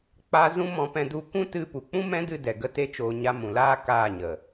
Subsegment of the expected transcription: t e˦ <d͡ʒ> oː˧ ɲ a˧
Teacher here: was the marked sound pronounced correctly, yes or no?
no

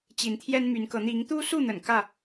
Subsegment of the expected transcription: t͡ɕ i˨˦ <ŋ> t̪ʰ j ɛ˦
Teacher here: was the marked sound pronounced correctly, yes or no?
no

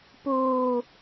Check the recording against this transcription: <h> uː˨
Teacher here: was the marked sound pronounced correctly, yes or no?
no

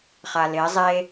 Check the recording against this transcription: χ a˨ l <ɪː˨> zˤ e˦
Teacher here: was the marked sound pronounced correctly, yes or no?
no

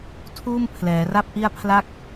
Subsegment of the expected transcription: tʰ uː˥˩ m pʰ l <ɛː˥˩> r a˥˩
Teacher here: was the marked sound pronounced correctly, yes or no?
no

